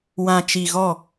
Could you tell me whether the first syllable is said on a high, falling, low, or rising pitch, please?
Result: low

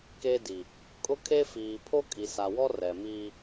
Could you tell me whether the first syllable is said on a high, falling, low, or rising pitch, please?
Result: high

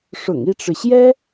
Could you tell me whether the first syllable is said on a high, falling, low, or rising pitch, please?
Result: low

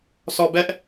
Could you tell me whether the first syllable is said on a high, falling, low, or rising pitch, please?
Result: low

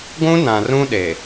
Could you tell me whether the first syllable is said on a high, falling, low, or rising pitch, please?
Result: high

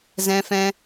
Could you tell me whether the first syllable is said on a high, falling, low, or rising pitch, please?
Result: high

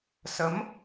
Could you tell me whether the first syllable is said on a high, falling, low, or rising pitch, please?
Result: rising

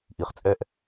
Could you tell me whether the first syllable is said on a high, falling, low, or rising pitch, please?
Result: low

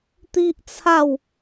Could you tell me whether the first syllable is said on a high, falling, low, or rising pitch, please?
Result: high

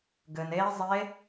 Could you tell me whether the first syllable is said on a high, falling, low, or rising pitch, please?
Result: low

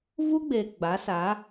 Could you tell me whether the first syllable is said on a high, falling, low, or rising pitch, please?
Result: high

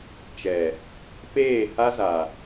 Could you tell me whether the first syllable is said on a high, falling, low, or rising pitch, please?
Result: low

